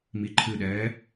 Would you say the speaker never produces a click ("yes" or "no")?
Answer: no